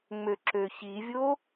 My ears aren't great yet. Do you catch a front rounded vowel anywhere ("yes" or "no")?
yes